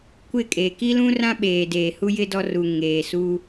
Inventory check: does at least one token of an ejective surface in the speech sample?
yes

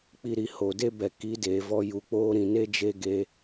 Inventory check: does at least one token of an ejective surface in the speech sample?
no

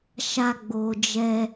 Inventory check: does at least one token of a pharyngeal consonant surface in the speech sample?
no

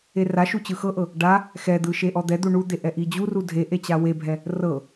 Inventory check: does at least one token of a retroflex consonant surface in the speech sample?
yes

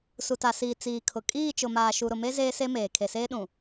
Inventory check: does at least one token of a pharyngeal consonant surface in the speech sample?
no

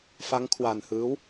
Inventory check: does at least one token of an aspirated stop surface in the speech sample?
yes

